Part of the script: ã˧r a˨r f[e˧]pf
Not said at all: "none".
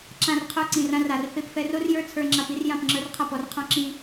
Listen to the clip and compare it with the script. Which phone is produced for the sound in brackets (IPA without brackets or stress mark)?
e˧